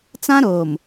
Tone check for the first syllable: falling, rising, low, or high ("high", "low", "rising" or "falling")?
high